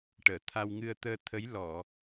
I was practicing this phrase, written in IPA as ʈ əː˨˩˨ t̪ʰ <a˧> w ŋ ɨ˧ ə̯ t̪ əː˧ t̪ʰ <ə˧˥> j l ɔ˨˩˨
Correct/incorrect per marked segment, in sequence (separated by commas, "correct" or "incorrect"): correct, correct